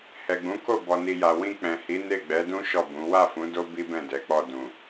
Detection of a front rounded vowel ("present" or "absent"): absent